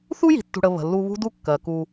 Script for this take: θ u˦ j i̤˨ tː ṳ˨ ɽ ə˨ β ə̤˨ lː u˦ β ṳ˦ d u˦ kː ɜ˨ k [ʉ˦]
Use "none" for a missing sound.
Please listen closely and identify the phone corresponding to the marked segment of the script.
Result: u˦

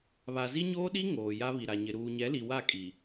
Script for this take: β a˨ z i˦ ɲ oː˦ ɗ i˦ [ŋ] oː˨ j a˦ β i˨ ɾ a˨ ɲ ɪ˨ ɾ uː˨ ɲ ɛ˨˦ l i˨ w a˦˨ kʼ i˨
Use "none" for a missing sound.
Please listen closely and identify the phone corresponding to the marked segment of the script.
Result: ŋ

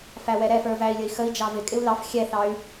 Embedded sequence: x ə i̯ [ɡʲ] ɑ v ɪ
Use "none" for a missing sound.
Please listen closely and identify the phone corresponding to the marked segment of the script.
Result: d͡ʒ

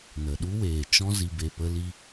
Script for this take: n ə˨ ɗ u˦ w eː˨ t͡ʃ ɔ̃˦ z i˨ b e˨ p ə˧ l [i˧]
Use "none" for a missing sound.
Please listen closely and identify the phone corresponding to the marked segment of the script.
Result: i˧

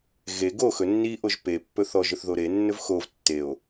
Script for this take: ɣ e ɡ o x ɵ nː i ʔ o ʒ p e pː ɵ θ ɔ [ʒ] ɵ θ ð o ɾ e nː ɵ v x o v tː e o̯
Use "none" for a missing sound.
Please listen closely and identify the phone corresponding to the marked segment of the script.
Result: ʒ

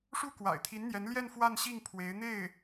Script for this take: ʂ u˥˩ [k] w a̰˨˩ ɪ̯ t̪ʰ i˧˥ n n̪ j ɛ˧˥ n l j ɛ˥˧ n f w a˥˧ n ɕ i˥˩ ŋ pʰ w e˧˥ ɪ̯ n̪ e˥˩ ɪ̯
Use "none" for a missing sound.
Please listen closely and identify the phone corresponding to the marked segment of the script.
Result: k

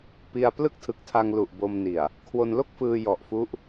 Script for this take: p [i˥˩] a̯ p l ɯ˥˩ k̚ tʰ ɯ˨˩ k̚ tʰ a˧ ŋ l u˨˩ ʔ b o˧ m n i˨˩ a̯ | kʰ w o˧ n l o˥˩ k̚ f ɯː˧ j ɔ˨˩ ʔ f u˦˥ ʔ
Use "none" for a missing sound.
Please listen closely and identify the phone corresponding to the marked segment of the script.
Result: i˧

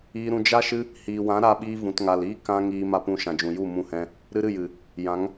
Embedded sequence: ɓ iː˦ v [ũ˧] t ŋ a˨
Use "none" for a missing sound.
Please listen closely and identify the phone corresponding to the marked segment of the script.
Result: ũ˨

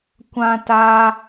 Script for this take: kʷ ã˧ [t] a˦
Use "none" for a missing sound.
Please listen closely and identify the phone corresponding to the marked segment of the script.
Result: t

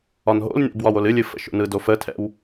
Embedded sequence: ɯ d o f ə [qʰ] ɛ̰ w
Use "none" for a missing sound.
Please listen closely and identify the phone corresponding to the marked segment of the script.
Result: tʰ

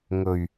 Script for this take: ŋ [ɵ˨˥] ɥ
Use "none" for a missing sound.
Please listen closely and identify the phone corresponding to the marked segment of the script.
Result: ɵ˨˩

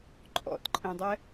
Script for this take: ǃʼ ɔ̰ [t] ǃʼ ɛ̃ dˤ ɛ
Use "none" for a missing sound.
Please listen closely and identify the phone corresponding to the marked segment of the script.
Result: t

